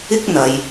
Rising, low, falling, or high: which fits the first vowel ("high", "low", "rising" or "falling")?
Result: high